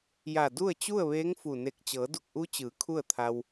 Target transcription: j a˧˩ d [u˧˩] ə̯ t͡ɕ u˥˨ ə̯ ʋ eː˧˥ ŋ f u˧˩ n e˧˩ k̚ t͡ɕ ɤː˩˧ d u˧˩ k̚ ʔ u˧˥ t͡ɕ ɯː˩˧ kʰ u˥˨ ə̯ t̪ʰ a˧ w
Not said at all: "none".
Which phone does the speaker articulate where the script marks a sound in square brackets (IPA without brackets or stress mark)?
u˥˨